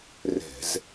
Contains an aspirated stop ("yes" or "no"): no